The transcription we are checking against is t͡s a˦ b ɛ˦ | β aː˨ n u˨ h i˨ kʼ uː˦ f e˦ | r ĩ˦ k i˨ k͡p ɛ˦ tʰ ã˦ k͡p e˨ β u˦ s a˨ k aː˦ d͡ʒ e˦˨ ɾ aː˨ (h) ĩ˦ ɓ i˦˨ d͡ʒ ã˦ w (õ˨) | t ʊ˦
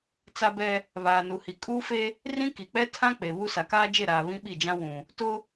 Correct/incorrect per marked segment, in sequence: incorrect, incorrect

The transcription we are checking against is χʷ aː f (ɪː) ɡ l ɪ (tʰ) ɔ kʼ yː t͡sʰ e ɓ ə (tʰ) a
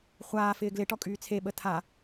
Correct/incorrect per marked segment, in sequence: correct, incorrect, correct

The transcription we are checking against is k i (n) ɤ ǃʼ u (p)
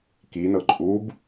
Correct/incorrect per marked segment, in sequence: correct, incorrect

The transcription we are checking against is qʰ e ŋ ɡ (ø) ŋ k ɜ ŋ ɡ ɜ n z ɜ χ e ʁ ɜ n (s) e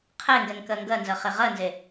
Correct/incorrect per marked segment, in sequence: incorrect, incorrect

